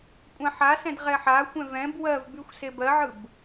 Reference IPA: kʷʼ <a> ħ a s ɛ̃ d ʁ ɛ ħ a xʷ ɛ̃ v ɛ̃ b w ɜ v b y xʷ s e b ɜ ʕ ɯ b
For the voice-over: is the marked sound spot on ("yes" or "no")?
no